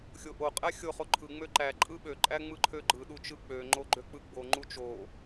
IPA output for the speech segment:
xʲ o ʔ o qʼ æ xʲ o χ o ǃʰ ɯ ŋ͡m ø ǃ æ ǃʼ ɯ ɓ ø ǃʼ æ ŋ͡m ɯ ǃʰ ø ɡ͡ǃ ɯ ɗ u t͡ʃ ɯ k͡p ø ŋ͡ǃ o ɡ͡ǃ ø k͡p ɯ ɡ͡b o ŋ͡ǃ u t͡ʃ o

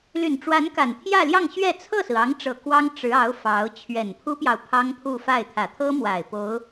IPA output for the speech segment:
l y˨˩ n ʈ͡ʂ w a˧˥ n k a˨˩ n t̪ʰ j ä˥˧ l j ɑ˥˧ ŋ ɕ ɥ ɛ˥˧ t͡sʰ ɤ˥˩ s ɹ̩˩ ɑ˧˥ ŋ ʈ͡ʂ ɤ˨˩ k w ɑ˥ ŋ ʈ͡ʂ ɻ̩˧˥ ɑ˧˥ ʊ̯ f ɑ˧˥ ʊ̯ t͡ɕʰ ɥ ɛ˨˩ n pʰ u˥ p j ɑ˨ ʊ̯ pʰ ɑ˥ ŋ pʰ u˥˧ f a˥˩ ɪ̯ t̪ʰ ä˨˩ t̪ʰ ɤ˥ m w a˨˩ ɪ̯ p o˧˥ ʊ̯

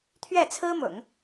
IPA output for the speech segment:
t̪ʰ ɥ ɛ˥˩ t͡sʰ ɹ̩˥ m ʊ̰˨˩˦ ŋ

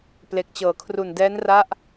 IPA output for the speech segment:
p l e˨˩ k̚ t͡ɕ ɤː˩˦ kʰ r u˨˩ n d ɛː˦˥ n r a˦˥ ʔ

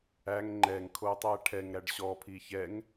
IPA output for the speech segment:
æ ŋ ŋ͡ǃ ɛ ŋ kʰ o tˤ æ ʈʰ ɛ ŋ ɾ æ ɖ ɕ ɔ pʰ i ç ɛ ŋ

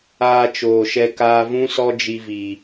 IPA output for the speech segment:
aː˧ t͡ʃ oː˨ ʃ ɛ˧ k aː˧ v ũ˦ s ɔ˦ d͡ʒ i˧ v i˨

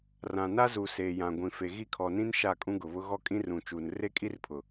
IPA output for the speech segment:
r ã˨ n a˦ z u˨ s eː˨ j ã˨ ɡʷ ĩ˨ f e˨ ɣ i˦˨ kʰ ɔ˨ n ĩ˦ n ʃ a˦˨ kʼ ũ˦ ɡ ʊ˨ β ʊ˦ ɣ ɔ˦ kʼ ĩ˦ r ũ˨ t͡ʃ uː˨ n r e˦ kʼ i˦ r pʰ ʊ˨

